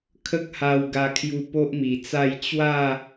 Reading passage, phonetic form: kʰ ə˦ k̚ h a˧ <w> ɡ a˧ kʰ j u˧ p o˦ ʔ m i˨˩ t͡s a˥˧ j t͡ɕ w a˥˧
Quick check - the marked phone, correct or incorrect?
correct